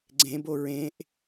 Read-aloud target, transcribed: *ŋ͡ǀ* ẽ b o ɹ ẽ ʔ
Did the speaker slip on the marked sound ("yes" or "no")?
yes